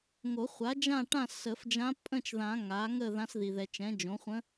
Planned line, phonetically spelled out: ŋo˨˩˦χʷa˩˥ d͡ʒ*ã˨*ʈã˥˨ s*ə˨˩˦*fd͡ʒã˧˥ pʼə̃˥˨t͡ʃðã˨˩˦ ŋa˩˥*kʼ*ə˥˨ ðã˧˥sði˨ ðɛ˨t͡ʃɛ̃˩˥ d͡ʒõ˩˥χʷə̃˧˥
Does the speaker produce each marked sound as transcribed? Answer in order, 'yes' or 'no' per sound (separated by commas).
no, yes, no